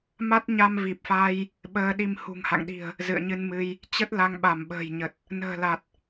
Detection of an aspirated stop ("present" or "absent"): absent